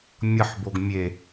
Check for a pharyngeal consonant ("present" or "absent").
present